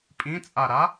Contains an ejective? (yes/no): yes